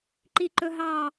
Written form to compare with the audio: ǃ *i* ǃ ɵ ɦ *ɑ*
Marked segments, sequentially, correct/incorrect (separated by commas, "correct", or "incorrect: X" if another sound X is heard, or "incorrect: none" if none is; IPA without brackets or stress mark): correct, correct